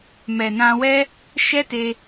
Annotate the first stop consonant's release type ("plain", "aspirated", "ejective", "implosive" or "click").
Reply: plain